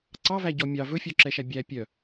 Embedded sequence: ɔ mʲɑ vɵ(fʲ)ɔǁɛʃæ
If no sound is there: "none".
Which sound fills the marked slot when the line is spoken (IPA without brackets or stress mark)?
fʲ